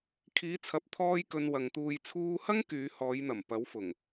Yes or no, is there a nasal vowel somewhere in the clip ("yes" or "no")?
no